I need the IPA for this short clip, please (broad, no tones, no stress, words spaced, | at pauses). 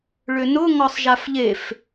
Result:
ɭʏnʊ ŋɔsˤʒafʎef